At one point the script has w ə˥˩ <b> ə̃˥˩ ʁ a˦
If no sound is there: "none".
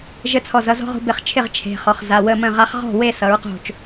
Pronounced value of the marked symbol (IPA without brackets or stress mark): m